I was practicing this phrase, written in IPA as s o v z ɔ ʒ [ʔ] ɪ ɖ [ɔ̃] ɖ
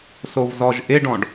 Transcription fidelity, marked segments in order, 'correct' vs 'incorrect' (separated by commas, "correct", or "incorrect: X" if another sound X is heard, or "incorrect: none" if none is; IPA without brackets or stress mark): correct, correct